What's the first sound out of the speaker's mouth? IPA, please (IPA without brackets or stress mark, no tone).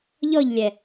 ʎ